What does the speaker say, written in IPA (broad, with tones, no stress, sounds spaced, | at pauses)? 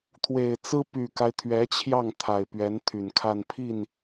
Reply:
t̪ʰ w e˨˩ ɪ̯ t͡s ɹ̩˥ p y˨˩ k a˦ ɪ̯ t̪ʰ ɥ ɛ˧˥ t͡ɕʰ j ɑ˥˩ ŋ t̪ʰ a˨˩ ɪ̯ p ɥ ɛ˧˥ n t̪ʰ y˨˩ n kʰ a˥˧ n pʰ i˥˩ n